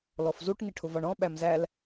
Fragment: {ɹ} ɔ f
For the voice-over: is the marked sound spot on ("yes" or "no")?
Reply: no